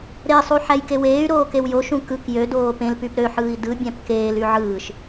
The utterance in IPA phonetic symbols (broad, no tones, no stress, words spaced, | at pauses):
ɾesˤu ħæjkeweːy̯ɾoː kewjoʃũ kɯk jødoː pẽlpyp ɾøħɯːi̯ dɯbʲæ̃p keːly ʕɯːʃ